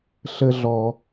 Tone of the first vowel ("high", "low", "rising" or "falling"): low